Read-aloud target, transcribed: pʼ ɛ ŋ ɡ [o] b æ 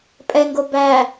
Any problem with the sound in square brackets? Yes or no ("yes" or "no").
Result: no